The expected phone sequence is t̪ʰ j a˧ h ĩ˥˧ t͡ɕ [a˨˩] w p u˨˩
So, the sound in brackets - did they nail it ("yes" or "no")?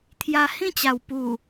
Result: yes